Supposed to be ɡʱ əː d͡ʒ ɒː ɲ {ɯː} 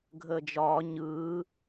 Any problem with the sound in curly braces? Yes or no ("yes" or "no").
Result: no